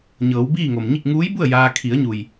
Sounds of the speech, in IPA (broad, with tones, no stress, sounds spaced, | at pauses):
ɲ ɤː˩˧ w b iː˥˨ ŋ o˩ m ɲ i˥˨ k̚ ŋ uː˧˥ j b u˥˨ ə̯ j aː˧ kʰ i˩˧ ə̯ ɲ u˩ j